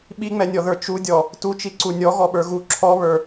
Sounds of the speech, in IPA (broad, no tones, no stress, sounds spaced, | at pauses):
ɓ i ŋ͡m ɛ nʲ ɔ ð ə˞ t͡ʃ u dʲ ɔ | t u t͡ʃ i ǀ u nʲ ɔ ɣ ɔ ɓ ə˞ ɣ u ǁʰ ɔ β ə˞